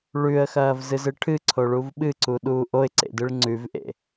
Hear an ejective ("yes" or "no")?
no